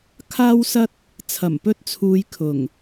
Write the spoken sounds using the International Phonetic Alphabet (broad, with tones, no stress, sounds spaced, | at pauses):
kʰ aː˥ w s ɐ˥ t̚ | t͡sʰ ɐ˨˩ m p ɵ˥ t̚ t͡sʰ uː˧ j kʰ ʊ˨˩ ŋ